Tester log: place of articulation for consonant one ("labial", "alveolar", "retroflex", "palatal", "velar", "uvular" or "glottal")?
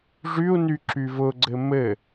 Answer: retroflex